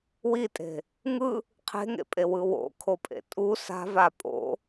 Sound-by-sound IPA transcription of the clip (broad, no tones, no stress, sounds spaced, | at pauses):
w i tʼ e̤ | ŋ ɯ | qʰ e̤ ŋ ḛ pʼ e w ɯ w o̰ kʰ o pʼ ḛ tʼ u s a̤ v a pʼ o̰